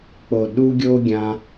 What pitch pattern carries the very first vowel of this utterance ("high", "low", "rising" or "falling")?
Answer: low